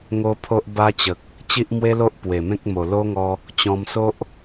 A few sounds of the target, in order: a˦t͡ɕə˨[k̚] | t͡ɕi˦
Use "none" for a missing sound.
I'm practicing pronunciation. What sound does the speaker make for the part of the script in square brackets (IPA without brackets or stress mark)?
k̚